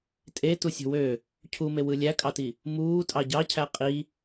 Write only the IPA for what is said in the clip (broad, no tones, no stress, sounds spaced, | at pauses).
tʼ e t u sʲ o̤ w ø | cʰ u m e w ɯ lʲ æ kʼ ɑ t i | m uː tʼ ɑ ɟ ɑ cʰ æ qʼ i